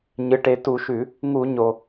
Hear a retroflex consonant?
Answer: yes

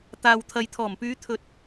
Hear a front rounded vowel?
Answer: yes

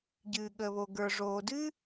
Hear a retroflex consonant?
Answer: yes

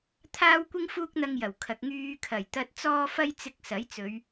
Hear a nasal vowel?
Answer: no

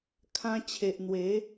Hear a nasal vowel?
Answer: yes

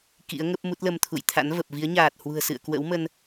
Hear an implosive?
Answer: no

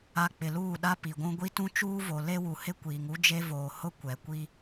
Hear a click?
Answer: no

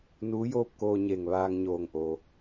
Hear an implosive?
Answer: no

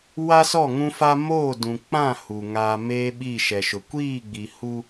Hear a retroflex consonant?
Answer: no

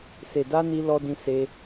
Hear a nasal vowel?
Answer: yes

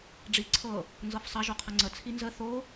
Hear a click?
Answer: yes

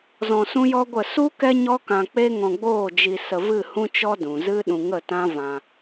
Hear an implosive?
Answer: yes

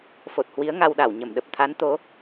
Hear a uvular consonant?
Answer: no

